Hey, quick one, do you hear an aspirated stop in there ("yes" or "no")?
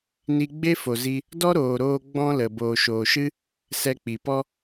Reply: no